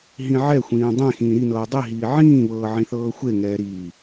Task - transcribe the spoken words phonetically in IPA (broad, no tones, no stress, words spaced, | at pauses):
ɦĩʕɛxʷĩː dˤẽ xĩːɾinɤː dˤiɦiː ʕĩːβɤː ʕĩθɤːxʷeŋɛː ɾiː